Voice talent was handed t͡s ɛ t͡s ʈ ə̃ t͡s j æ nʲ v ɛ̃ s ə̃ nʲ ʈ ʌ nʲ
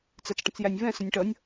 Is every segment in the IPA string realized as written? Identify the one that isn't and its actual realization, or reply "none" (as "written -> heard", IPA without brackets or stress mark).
none